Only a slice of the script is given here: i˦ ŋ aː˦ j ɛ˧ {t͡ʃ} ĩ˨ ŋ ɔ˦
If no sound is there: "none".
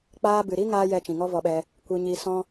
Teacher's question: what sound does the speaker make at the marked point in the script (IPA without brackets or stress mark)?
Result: t͡ʃ